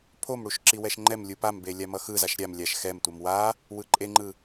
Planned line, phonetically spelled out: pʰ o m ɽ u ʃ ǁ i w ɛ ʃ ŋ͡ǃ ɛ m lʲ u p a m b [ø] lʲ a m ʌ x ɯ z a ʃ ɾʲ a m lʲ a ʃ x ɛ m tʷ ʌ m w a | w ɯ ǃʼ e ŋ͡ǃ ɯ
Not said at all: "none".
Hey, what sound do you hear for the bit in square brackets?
e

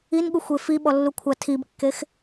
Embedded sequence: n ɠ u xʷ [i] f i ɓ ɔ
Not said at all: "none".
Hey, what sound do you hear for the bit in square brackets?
e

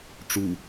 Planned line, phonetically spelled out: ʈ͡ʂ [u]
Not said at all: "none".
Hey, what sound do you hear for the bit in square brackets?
u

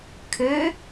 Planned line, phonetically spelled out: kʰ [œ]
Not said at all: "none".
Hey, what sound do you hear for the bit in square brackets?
ø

